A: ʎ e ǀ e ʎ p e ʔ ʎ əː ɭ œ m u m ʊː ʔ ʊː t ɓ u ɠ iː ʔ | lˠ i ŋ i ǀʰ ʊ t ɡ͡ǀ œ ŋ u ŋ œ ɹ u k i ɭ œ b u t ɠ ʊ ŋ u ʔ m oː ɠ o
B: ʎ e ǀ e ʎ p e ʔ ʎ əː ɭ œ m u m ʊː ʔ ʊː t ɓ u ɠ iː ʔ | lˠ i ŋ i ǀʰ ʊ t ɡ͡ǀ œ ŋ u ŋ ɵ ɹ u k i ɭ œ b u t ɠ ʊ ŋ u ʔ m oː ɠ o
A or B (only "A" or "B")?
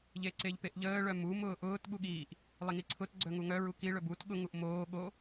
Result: A